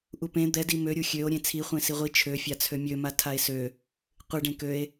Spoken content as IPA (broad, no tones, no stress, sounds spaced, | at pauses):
ʔ u p ẽ d̪ ɛ d i m ø ɾʲ u xʲ ø o̯ ɾʲ ẽ t͡sʰ i χʷ ẽ s i ʁʷ i t͡ʃʰ ø fʲ a t͡sʰ ø mʲ ø m a tʰ a e̯ s ø | qʷ ɨ ɖ ẽ k ø e̯